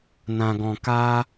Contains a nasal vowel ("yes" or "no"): yes